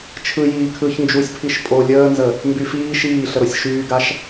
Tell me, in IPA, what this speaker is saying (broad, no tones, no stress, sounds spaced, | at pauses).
t͡ʃʰ ɯ j iː kʰ ɯ ç n d͡ʒ u sʲ pʰ i ʃ pʼ o lʲ əː n z ə | m b y f iː ʃ iː ɬ ə ɾ o sʲ ʃ yː ɡ a ʃ